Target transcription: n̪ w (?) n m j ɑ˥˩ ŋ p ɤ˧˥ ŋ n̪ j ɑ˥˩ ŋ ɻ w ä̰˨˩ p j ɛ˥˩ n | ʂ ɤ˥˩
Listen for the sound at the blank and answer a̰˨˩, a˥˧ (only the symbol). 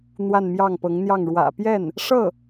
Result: a˥˧